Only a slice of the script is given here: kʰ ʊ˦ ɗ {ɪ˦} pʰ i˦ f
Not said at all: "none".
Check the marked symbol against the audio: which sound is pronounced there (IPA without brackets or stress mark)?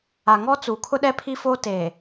ɛ˦